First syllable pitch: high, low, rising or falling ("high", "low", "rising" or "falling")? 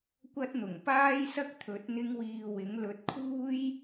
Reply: high